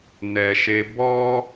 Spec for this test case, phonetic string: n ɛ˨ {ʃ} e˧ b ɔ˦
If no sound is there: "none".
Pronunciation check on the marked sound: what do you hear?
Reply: ʃ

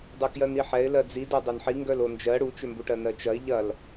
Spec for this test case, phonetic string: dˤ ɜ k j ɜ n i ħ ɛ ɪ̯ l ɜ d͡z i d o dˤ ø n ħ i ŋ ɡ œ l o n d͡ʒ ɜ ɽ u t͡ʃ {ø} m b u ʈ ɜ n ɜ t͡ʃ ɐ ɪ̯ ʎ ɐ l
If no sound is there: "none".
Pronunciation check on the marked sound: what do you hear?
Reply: ø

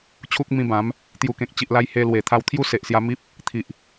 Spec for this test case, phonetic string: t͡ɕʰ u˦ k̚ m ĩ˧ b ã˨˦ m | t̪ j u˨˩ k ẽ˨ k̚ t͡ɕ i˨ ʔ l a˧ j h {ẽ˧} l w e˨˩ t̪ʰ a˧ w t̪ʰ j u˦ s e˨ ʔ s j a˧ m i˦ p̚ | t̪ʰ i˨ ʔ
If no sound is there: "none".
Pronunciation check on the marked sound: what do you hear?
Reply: e˧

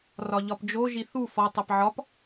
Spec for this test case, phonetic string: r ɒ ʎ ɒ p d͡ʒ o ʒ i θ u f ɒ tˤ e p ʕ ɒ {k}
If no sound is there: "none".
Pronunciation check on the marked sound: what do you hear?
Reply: p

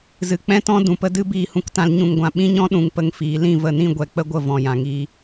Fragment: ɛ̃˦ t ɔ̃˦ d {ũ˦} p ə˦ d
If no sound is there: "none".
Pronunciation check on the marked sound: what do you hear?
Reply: ũ˨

